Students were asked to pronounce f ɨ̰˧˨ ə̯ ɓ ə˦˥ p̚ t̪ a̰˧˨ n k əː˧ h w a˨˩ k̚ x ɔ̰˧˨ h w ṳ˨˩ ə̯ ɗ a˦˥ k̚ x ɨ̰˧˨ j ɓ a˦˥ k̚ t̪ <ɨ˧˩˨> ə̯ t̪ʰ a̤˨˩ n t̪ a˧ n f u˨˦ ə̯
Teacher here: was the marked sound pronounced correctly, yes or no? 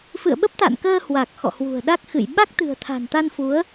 no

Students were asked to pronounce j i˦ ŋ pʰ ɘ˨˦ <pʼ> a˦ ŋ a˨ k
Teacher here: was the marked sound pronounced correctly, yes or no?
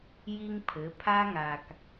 no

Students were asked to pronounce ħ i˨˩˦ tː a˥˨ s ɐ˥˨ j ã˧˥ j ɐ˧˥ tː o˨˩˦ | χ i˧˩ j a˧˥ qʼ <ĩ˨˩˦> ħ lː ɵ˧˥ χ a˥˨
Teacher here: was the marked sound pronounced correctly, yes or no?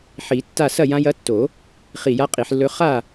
no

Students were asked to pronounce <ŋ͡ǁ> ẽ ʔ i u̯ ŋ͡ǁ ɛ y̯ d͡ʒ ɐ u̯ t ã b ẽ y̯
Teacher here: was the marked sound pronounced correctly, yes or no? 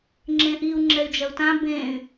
yes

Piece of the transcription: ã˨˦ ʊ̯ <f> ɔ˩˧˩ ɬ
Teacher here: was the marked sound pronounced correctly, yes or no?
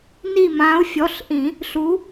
no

